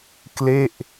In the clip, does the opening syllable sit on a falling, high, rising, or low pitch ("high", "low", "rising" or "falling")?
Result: falling